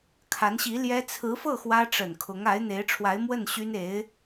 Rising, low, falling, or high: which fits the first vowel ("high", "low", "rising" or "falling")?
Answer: rising